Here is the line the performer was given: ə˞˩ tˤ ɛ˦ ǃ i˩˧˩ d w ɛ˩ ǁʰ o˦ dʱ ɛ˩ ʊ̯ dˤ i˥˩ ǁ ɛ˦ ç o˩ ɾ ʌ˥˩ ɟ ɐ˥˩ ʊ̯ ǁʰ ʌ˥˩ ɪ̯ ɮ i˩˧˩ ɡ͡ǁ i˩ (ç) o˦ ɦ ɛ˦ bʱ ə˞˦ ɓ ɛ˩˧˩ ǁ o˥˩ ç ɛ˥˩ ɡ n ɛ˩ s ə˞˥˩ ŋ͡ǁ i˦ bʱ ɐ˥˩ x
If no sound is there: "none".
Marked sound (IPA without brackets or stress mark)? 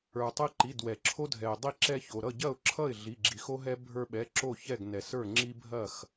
x